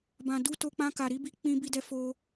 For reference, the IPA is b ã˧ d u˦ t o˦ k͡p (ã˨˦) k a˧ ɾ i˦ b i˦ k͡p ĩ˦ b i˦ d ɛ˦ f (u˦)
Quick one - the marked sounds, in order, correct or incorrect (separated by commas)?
incorrect, incorrect